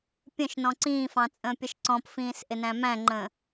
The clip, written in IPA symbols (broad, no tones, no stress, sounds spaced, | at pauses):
pʲ ə̃ ʃ n ɔ̃ ǀ ĩː f ɑ̃ t͡sʼ ə̃ː pʲ ə ʃ ǀ ɔ̃ p f ĩː s ʔ ɪ n æ̃ m æ̃ ŋ͡ǃ ə̃ː